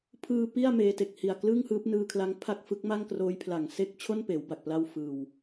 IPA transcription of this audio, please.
pʰ ɯː˧ p i˥˩ a̯ m eː˦˥ t e˨˩ k̚ h i˨˩ a̯ k l ɯ˥˩ ŋ h ɯː˦˥ p̚ n ɯː˧ kʰ l a˦˥ ŋ pʰ a˥˩ k̚ f ɯ˦˥ k̚ m a˥˩ ŋ k r oː˦˥ j pʰ l a˨˩ ŋ s e˥˩ k̚ t͡ɕʰ o˥˩ n p eː˩˦ w b a˨˩ k̚ p l a˥˩ w f ɯː˧ w

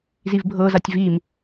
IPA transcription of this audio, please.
z i v bʱ ɤ z a tʲ v i m

